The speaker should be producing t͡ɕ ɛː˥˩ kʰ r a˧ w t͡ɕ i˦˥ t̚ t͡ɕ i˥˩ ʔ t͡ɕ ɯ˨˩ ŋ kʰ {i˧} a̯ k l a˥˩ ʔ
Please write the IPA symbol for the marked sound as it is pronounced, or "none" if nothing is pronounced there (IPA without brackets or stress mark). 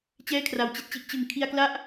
i˧